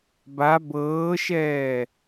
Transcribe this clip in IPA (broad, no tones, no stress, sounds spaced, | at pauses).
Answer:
b a b ɤː ʃ ɛː